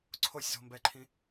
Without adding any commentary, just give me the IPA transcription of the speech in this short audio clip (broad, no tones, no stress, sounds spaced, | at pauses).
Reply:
ǀʰ o sʲ z o̤ m b ɛ ǃʰ ĩ